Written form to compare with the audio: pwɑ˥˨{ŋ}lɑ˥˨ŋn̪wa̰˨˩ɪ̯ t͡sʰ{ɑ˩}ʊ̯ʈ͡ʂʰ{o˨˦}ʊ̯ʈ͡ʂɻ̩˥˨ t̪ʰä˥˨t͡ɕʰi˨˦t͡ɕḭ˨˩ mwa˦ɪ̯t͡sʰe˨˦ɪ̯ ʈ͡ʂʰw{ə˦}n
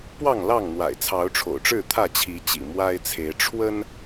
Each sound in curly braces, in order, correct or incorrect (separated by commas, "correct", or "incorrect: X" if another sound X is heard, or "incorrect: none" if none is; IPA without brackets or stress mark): correct, incorrect: ɑ˨˦, incorrect: o̰˨˩, correct